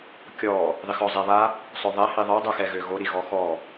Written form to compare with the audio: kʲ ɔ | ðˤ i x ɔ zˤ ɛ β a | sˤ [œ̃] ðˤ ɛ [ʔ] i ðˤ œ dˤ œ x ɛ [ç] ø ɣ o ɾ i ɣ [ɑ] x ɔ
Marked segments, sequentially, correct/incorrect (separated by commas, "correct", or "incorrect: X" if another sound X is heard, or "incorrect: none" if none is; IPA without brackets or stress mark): incorrect: œ, incorrect: h, incorrect: ɣ, incorrect: ɔ